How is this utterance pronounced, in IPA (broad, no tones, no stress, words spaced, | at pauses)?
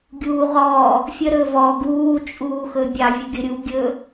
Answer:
ɡʲuːʁɔː | fʲə ɾɵvɔ ɡuː t͡ʃʼuːxɵbʲɑ vʲəɡʲəɾʲu ɡʲɵ